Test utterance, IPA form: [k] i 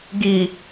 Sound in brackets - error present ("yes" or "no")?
yes